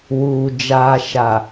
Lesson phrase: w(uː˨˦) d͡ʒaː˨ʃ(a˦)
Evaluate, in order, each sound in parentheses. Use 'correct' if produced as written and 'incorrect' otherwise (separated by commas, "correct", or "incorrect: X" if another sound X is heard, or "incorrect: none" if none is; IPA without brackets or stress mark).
incorrect: uː˨, incorrect: a˨